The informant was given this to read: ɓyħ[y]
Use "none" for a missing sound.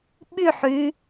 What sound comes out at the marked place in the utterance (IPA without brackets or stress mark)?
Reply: y